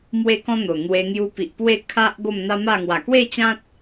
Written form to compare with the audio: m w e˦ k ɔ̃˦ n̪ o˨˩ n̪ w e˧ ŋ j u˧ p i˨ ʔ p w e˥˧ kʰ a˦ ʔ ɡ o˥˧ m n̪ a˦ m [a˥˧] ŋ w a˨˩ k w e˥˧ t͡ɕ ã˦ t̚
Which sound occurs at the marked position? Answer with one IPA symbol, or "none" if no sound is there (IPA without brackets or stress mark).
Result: a˥˧